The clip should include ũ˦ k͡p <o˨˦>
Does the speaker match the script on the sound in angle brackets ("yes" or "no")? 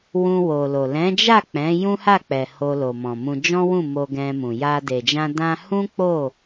no